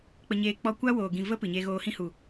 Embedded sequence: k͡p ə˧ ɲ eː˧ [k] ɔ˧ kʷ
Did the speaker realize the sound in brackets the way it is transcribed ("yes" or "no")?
no